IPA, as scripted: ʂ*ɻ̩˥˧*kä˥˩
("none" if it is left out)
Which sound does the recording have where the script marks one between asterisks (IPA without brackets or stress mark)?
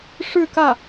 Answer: ɻ̩˥˧